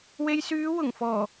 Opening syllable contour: low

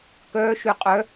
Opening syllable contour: rising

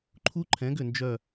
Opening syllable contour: high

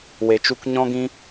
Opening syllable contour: low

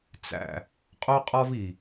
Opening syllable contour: low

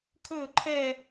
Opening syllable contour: falling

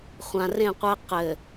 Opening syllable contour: low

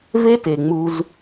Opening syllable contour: high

